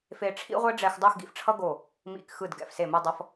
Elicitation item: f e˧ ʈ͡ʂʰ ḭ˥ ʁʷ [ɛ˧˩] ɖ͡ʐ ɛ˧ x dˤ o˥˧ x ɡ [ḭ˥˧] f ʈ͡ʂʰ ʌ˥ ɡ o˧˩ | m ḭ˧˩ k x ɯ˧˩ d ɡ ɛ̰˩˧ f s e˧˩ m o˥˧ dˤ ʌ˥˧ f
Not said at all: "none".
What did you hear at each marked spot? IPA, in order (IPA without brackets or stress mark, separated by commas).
ɛ˥, ḭ˧